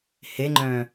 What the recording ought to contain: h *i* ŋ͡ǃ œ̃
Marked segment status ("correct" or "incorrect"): incorrect